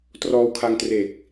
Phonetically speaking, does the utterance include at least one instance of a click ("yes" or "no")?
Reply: no